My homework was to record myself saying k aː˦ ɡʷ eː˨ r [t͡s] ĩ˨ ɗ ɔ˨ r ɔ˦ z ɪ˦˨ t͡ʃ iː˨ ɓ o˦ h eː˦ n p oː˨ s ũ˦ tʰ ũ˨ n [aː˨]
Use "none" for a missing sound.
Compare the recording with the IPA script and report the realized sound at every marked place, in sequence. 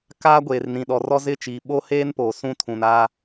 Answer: n, aː˦

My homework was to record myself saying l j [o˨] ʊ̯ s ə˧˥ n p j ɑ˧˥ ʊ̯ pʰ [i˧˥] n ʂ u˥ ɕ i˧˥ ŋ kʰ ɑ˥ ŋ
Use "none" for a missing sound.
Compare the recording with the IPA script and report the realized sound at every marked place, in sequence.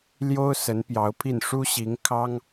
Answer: o˥, i˥˩

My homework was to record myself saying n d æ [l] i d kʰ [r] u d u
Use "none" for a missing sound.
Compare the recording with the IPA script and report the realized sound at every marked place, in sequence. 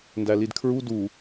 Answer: l, ɹ

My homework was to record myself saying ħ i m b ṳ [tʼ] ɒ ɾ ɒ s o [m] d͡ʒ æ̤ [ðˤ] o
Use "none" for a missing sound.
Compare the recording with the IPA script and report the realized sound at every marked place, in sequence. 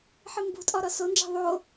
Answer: tʼ, n, ðˤ

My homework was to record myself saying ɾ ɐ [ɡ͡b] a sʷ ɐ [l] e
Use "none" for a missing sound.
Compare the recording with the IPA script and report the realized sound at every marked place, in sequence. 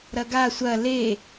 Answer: ɡ, l

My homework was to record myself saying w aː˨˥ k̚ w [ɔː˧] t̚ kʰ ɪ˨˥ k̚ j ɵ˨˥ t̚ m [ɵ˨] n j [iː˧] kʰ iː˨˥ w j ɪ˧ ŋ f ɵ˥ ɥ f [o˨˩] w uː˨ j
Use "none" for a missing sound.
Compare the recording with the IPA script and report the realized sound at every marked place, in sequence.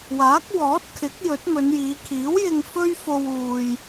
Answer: ɔː˨˥, ɵ˨˧, iː˨˧, o˧

